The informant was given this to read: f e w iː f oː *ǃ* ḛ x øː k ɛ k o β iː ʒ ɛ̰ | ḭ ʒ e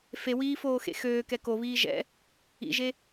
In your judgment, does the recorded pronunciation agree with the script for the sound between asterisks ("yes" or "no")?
no